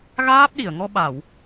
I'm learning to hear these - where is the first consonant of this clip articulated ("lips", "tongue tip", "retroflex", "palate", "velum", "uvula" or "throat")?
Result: velum